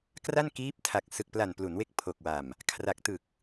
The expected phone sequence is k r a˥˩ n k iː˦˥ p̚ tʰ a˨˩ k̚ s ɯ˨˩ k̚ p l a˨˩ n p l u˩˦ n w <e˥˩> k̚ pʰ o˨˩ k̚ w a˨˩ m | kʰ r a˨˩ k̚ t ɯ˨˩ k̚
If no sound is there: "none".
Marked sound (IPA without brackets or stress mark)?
e˦˥